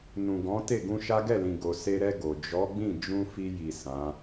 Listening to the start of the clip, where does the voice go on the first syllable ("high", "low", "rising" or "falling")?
low